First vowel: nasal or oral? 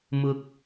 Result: oral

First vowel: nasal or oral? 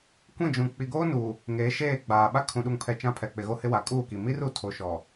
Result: nasal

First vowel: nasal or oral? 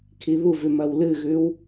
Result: oral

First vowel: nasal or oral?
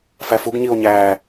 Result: oral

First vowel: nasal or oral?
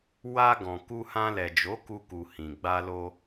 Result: oral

